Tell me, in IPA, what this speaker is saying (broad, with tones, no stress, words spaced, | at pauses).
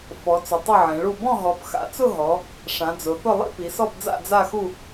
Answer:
fɔ˨˦t͡sʊ˨˦ tˤʊ˥˧ʕẽ˨˦ɭu˥˧ bɔ̃˥˧ɦɔ˨˦pxa̰˨˦t͡sʊ˥˧ ɦɔ˨˦ | ʂã˨˦d͡zʊ˨˦θʊ˥˧ lˠḭ˥˧pi˨˦sɔ˥˧pd͡za̰˥˧ d͡za˥˧xu˥˧